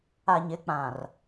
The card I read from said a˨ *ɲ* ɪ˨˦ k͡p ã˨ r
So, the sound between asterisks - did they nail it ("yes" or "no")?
yes